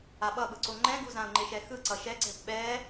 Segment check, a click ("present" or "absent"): present